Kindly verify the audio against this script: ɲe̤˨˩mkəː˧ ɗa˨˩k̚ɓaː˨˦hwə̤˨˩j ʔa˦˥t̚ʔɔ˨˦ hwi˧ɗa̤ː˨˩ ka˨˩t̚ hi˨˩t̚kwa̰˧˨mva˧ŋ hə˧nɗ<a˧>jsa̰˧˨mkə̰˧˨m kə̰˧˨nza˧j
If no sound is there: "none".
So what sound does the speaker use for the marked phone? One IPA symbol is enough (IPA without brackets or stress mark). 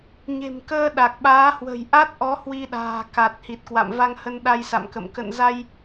a˧